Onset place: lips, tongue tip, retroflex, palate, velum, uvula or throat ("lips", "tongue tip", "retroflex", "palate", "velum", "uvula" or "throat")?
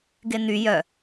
velum